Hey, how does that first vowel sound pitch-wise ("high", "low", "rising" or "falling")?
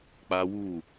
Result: high